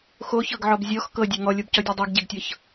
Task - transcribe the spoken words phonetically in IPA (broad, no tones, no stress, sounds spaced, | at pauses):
x o ç ɤ ɡ ʕ ɔ b zʲ ɔ x k ɤ dʲ e ŋ ɔ lʲ o b c ɔ dʲ ɔ dˤ o ɡ ɟ e ɡ tʲ ɤ ç